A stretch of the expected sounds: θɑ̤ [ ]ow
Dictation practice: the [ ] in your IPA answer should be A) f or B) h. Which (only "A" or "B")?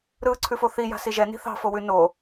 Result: A